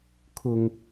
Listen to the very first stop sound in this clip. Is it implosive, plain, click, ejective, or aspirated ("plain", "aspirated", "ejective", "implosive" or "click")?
aspirated